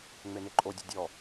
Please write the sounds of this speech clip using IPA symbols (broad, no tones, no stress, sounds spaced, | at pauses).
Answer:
ŋ͡m e n e ǃʼ o dʲ ʊ dʲ ɔ